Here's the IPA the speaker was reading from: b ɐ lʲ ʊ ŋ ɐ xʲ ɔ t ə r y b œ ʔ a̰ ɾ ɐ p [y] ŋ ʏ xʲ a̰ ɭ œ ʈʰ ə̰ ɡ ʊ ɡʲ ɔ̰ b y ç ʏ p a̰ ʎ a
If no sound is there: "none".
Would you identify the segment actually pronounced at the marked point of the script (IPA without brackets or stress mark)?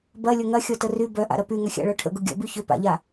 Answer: y